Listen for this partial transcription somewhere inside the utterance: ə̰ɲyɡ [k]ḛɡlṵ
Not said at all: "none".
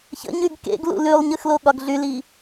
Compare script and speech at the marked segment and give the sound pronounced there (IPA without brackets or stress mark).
k